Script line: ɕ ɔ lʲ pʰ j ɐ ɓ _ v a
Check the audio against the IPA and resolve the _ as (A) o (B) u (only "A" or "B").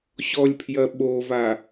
A